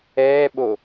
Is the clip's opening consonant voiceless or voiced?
voiced